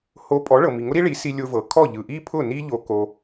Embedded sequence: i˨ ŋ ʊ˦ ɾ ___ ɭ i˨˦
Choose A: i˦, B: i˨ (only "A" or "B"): A